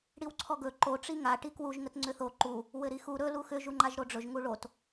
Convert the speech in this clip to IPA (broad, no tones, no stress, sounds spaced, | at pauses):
ɽ i w ǀʰ ɔ ɡ ɵ ǃ o ʈ͡ʂ i ŋ a ʈ i k w u ʒ ŋ ə t ŋ͡ǀ ʏ θ o ǃ u | w ɘ ɾ i x u ɾ ɵ l u x ʏ ʒ u ŋ͡ǃ a ʒ ɾ o ɖ͡ʐ ɵ ʒ ŋ u ɭ o t